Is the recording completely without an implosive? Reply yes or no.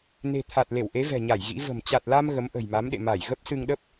no